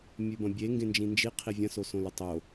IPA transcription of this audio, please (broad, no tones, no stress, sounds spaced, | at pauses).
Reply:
mʲ ʉ b ɐ̃ bʲ e ŋ ɡ ẽ n d͡ʒ ĩ n d͡ʒ i qʰ i vʲ ɐ̃ s o s õ l ɵ tˤ o